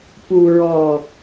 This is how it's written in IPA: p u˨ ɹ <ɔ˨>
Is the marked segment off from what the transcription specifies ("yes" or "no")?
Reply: no